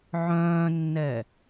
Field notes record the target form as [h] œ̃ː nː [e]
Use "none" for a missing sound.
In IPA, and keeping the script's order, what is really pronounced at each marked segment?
ʕ, ɛ

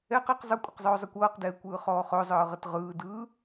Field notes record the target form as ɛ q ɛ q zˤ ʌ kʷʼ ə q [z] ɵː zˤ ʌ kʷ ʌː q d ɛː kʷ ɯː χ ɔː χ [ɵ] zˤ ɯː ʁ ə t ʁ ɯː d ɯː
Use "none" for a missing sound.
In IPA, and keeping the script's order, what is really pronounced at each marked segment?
zˤ, ɵ

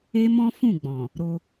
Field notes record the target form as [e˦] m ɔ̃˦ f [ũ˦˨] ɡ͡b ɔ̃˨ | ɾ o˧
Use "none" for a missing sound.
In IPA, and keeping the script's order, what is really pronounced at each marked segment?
e˦, ũ˦˨

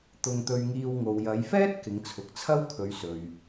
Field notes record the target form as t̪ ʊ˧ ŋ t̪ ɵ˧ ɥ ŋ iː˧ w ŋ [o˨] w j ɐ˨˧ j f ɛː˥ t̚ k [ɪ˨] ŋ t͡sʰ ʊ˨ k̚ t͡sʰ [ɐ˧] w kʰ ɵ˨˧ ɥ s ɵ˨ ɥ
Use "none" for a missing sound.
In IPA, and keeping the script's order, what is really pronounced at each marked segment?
o˨, ɪ˨˧, ɐ˥

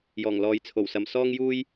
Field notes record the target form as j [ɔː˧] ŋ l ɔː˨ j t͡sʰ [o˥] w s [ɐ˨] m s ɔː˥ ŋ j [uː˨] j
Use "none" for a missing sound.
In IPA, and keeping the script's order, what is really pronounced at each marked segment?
ɔː˨˩, o˨˩, ɐ˨, uː˥

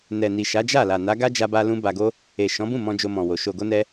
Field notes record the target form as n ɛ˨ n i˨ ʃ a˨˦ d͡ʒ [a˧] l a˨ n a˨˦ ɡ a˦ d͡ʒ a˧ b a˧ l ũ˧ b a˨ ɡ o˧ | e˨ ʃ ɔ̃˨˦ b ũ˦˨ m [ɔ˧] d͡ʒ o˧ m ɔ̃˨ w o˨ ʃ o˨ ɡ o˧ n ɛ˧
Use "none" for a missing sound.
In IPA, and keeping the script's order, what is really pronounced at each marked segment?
a˦˨, ɔ̃˧

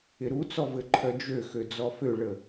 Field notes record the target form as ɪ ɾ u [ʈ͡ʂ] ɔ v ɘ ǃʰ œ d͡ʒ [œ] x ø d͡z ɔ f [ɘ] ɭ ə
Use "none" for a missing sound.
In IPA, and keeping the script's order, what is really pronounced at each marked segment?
t͡s, ø, ø

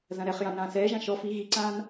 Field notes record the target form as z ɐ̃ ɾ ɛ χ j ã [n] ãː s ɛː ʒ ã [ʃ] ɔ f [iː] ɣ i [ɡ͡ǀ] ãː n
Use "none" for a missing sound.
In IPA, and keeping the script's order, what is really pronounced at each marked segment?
n, ʃ, i, ǀ

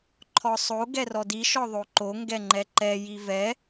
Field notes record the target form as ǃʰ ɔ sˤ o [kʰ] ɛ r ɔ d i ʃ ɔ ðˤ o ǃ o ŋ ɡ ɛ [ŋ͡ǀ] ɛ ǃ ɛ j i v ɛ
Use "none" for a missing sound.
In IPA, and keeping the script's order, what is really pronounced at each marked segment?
ɡ, ŋ͡ǃ

